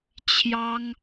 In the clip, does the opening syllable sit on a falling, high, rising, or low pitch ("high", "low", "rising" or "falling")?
high